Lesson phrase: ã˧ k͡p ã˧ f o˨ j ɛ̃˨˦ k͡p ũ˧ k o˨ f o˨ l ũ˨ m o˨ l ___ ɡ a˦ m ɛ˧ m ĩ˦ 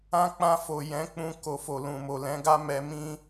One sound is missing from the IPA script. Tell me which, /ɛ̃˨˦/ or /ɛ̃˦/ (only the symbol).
ɛ̃˨˦